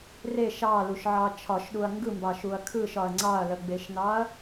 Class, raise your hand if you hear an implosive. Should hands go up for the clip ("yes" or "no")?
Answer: yes